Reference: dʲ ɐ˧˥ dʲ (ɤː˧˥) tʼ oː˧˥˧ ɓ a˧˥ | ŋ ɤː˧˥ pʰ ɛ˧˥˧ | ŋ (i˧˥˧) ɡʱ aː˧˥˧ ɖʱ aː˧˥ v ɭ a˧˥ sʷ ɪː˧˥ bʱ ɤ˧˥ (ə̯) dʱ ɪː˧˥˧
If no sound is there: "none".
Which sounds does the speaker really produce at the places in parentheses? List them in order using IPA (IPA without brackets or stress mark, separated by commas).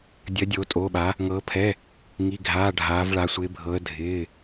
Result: oː˧˥, i˧˥˧, ə̯